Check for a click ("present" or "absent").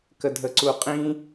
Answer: present